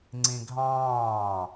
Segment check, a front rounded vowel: absent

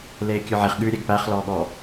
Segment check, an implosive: present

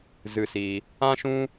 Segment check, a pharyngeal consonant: absent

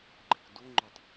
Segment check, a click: present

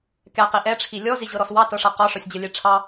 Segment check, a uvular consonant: present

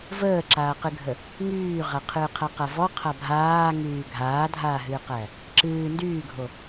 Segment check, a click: present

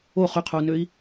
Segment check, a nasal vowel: absent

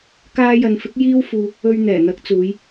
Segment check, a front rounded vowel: absent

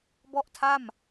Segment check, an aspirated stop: present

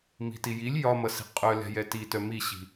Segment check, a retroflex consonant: absent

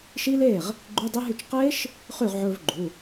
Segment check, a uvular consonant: present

